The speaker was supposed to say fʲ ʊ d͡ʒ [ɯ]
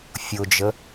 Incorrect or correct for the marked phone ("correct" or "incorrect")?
incorrect